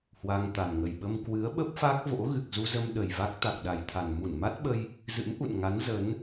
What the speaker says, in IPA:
h w a˧ ŋ t̪ a˨˩ n ŋ ə˨˩ j ɓ ə˧ m k w ɨ˨˦ ə̯ ɓ ə˦˥ p̚ f a˦˥ k̚ v o̰˧˥ ɣ ɨ˨˩ k̚ z u˧ z ə˧ m ɗ ə˨˩ j v a˦˥ k̚ t̪ a˨˩ k̚ ɗ a˨˩ j t̪ʰ a˨˩ n m u˧˩ n m a˦˥ t̚ ɓ ə˧ j | z ɨ̰˧˥ m ʔ ṵ˧˨ n ŋ a˨˦ n z ə˨˦ n

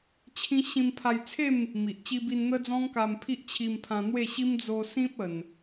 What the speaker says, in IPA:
t͡ɕʰ ĩ˦ ɕ ĩ˧ m pʰ a˧ j t͡sʰ e˥˧ m | m i˨ ʔ t͡ɕ i˧ b i˧ n n̪ ə˦ d͡z ɔ̃˦ ŋ k a˧ m pʰ i˦ ʔ t͡ɕʰ i˧ m pʰ ã˧ n̪ w e˥˧ ɕ i˦ m d͡z o˧ s ĩ˦ p̚ ə˧ n

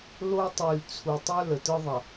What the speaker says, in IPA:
l o˦ tˤ y˨ l t͡sʰ u˨ tˤ ə˞˦ l ə˨ t ə˞˦ ðˤ ɐ˨

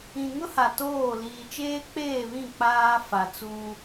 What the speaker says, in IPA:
ĩ˨ ŋ ʊ˦ h a˨ t oː˦˨ l iː˨ t͡ʃ eː˦ k͡p eː˦˨ β ĩ˦˨ k͡p aː˦ f a˨ t͡s uː˦

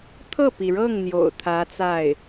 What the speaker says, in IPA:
t̪ʰ ɤ˥˩ p i˩ ɻ ɤ˥˩ ŋ n̪ j o̰˨˩ ʊ̯ t̪ʰ ä˧˥ t͡s a˥˩ ɪ̯

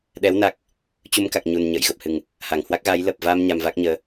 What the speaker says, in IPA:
ɗ ɛ˨˦ w n a˨˩ k̚ | t͡ɕ u˧ m k a˨˩ k̚ ɲ u˨˩ n ɲ ə̰ː˧˨ j ɣ ə˨˩ p̚ h ɨ˨˩ ŋ | h a˧˩ ŋ h w a˦˥ k̚ ɣ aː˨˦ j l ə˨˩ p̚ v a˧ m ɲ a˧ m v a˦˥ k̚ ɲ əː˧

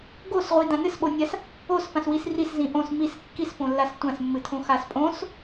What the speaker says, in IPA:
ɡ o s ʁʷ i d ã n ɨ s ɓ o nʲ a s | o s p ã s w i s r i s z ĩ ʔ õ s m i s kː i s p õ lː a s tʷ ã s mː ɨ tʰ õ x a s pʼ õ s

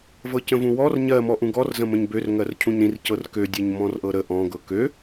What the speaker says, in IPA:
v ɤ c ə̃ v ũ w ɔ r ɲ ɜ m ɔ ʔ ũ ɡ ɔ r z ə̃ m ə̃ ɲ b ø r ŋ ɜ r cʰ ũ ɲ ɾ ĩ r c ɤ r k ø dʲ ɜ ɲ m ɔ̃ r ʔ ɤ ɾ ə ʔ ɔ̃ ɡ ɤ k ø

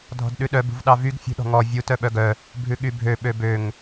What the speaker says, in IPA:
dʱ ɔ̤ d ɗ ʉ ɗ œ b ṳ v ɗ ɑ v y ɡ fʲ ṳ ɗ ɔ̤ ŋ ɔ vʲ u t œ ɓ œ ɡ œ | bʱ ʉ ɠ y bʱ ø ɓ ø b ø ŋ

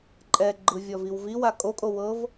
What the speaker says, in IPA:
ǃʼ ɛ ɡ͡ǃ ɯ vʲ ɔ v i w v i w a kʼ o kʼ o w ɤ v

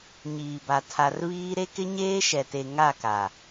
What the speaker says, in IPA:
ɲ iː˨ b a˨ tʰ a˨ r β iː˦ ɾ e˦ k ɪ˦ ɲ eː˦ ʃ ɛ˨ t e˨ ŋ a˦˨ k a˨

